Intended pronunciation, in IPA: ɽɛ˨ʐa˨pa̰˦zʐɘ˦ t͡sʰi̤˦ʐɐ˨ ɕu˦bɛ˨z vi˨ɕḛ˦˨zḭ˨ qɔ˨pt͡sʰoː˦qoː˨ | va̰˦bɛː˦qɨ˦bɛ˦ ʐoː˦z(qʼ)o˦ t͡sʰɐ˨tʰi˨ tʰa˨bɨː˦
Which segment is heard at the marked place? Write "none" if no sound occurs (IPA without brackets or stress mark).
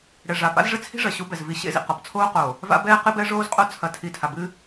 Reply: qʼ